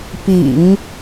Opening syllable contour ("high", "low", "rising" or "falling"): low